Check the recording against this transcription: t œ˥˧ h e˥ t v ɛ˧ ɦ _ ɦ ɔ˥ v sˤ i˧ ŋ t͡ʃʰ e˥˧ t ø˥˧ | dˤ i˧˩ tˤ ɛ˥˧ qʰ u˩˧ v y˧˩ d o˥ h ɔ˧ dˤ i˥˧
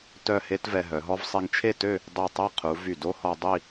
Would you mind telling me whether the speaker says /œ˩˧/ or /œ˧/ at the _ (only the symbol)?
œ˩˧